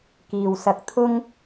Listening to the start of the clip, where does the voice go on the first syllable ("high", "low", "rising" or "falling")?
low